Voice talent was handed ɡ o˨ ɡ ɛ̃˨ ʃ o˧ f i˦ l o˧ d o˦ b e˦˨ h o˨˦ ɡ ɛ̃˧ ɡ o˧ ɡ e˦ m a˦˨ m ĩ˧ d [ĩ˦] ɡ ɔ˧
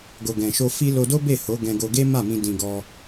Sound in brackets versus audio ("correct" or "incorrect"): incorrect